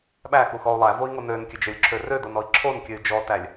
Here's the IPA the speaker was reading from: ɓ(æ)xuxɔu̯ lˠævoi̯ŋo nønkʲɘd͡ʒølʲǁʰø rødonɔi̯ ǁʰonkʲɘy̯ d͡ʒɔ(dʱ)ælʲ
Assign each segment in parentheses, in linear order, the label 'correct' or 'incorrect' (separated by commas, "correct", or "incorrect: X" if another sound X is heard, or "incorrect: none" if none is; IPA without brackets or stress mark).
correct, incorrect: t